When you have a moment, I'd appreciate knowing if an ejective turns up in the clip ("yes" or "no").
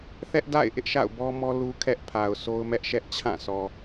no